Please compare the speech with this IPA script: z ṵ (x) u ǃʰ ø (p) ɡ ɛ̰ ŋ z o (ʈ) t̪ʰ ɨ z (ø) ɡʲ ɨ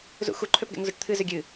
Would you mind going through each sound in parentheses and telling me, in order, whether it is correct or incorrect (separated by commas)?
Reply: correct, correct, correct, correct